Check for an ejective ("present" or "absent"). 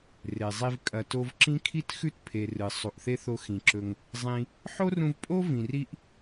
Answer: present